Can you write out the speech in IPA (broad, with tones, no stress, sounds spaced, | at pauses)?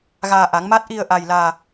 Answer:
ɣ aː˧ ʔ a˨˦ ŋ m a˦˥ t̚ ʔ i˧ ə̯ ʔ a˧ j l aː˧